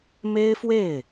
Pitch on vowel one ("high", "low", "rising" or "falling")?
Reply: high